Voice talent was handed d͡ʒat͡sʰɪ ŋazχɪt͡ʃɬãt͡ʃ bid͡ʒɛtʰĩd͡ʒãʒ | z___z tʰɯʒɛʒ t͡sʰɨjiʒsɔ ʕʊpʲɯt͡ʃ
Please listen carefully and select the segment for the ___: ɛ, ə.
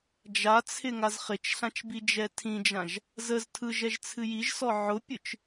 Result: ə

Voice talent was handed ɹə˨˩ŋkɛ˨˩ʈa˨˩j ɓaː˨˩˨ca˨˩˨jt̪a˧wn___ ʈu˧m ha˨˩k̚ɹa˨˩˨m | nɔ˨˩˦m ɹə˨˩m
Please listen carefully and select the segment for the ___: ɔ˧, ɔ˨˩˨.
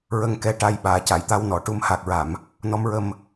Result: ɔ˨˩˨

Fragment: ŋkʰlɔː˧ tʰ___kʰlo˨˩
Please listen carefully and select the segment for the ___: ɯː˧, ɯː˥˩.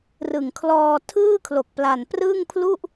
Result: ɯː˥˩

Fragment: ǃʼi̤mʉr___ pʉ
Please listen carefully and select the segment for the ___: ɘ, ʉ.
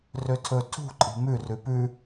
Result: ʉ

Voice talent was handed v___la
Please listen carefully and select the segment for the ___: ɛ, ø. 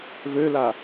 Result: ø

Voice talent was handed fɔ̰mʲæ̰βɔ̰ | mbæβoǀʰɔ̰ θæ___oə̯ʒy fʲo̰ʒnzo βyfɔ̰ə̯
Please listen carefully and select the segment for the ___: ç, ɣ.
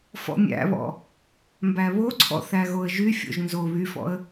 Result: ɣ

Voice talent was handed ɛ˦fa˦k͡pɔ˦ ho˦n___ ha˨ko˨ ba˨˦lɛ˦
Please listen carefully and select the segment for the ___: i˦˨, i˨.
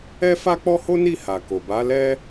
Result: i˦˨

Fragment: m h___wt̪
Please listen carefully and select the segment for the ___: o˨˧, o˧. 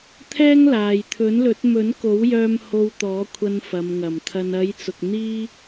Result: o˧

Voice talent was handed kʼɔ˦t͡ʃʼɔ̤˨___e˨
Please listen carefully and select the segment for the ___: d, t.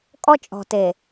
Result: t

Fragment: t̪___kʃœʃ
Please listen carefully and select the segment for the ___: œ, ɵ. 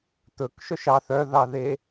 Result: ɵ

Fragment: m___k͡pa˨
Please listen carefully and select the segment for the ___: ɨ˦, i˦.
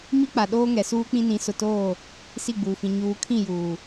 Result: i˦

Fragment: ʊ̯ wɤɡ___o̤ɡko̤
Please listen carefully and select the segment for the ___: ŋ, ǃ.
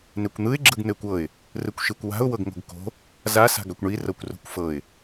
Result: ŋ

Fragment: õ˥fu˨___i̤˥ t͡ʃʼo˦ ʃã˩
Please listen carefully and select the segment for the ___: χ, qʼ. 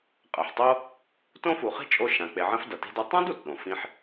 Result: χ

